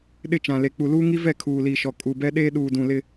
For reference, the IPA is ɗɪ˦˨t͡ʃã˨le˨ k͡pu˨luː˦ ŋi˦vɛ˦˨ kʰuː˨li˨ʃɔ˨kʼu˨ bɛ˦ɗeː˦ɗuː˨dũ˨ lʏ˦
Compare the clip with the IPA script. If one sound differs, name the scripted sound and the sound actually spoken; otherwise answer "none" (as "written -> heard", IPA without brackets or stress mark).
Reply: ʏ˦ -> ɪ˦